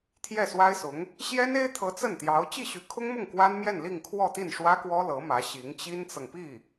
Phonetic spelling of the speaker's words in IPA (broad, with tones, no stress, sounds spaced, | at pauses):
t̪ʰ j ɛ˥˩ s w a˥ ɪ̯ s ʊ˧˥ ŋ | ɕ j ɛ˥ n e˥ ɪ̯ t̪ʰ ɤ˧˥ t͡s ə˥˩ n t̪ j ɑ˧˥ ʊ̯ t͡ɕ i˥˩ ɕ y˧˥ kʰ ʊ˥ ŋ m ʊ˥˩ ŋ k w a˥ n m j ɛ˥˧ n l i˥˧ ŋ kʰ w ɔ˥˧ t̪ i˥˩ n ʂ w ä˥ k w ɔ˥ l ɤ˧˥ m ä˧˥ ɕ i˧˥ ŋ t͡ɕ i˥ n t͡s ɤ˨ ŋ p i˥˩